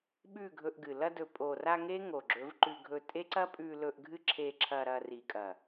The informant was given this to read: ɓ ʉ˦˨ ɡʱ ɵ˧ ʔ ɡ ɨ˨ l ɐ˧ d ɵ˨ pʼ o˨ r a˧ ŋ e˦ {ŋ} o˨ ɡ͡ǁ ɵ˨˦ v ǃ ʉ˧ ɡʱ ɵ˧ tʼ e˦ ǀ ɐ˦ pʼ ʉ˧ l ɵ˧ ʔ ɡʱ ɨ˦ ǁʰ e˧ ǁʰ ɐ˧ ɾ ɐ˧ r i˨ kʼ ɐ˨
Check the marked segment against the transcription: correct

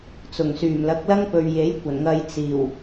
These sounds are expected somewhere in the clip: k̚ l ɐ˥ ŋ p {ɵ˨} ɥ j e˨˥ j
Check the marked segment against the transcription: correct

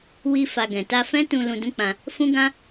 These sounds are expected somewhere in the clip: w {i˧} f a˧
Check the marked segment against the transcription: correct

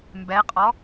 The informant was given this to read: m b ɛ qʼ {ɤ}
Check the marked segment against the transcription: incorrect: ɔ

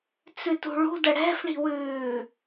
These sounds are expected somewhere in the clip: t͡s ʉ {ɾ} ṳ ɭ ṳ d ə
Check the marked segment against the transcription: incorrect: t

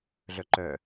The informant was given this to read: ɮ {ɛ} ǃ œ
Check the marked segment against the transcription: incorrect: œ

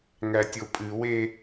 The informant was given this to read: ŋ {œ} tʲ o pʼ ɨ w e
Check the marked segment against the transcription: incorrect: æ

